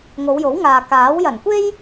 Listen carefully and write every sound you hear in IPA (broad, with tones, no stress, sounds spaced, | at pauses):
ŋ o˨˧ w j o˨˥ w ŋ aː˨ k aː˨˥ w j ɐ˨˩ n kʷ e˥ j